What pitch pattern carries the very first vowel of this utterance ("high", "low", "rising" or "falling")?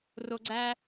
low